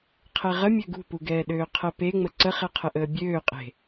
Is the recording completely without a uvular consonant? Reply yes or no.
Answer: no